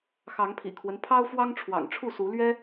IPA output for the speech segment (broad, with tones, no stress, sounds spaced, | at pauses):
x ɑ˨˦ ŋ pʰ ḭ˨˩ kʰ w ə˦ n pʰ ɑ˦ ʊ̯ f w ɑ˦ ŋ ʈ͡ʂʰ w ɑ̰˨˩ ŋ ʈ͡ʂʰ u˥˨ s u˨˦ l ɥ ɛ˦